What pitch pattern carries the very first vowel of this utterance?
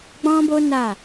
high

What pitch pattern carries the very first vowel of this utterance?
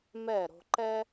falling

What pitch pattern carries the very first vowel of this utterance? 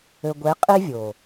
low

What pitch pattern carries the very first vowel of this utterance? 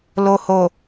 low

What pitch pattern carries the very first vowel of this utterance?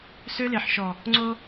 high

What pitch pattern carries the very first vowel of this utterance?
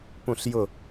falling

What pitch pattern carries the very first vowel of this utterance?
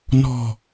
low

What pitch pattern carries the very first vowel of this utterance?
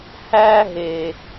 high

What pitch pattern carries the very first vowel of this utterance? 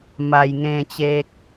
low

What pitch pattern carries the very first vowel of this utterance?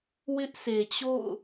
high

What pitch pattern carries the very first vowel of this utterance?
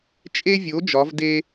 high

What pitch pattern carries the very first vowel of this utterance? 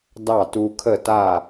falling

